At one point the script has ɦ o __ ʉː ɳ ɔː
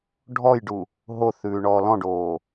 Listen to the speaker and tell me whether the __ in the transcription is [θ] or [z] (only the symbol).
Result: θ